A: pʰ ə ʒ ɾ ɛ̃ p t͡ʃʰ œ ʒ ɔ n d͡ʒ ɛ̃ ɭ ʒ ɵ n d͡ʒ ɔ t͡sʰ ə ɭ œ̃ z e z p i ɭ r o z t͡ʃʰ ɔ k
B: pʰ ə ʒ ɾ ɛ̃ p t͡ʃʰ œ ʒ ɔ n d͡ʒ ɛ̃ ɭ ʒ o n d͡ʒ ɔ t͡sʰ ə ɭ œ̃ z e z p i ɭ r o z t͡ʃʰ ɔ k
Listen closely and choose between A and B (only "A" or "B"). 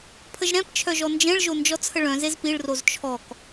B